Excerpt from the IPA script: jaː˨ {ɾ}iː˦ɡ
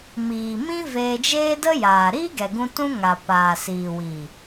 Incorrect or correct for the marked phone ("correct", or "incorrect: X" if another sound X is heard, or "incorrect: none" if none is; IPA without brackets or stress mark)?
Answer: correct